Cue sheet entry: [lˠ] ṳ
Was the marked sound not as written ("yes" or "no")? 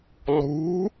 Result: no